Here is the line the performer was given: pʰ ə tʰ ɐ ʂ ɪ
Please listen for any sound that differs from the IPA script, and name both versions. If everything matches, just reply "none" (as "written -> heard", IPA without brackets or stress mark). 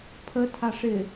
ɐ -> a